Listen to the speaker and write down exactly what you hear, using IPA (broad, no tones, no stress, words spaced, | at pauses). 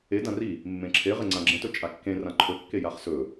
e dãri | mːẽǁʰe ʁeŋ͡ǀãɡ͡ǁẽtɵ t͡ʃʼakːẽ rãǃʰɵkːe jaχsɵ